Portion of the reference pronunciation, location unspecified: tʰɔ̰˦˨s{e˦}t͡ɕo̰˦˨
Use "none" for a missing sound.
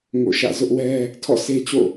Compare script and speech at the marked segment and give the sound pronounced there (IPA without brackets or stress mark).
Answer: e˦